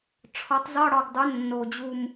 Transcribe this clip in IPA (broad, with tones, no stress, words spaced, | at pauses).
ʈ͡ʂʰɒ˩˥tˤzɒ˧˥˧ ɽɒ˨˩ɡdˤo˩˥ nːo˨˩d͡ʑu˦˨m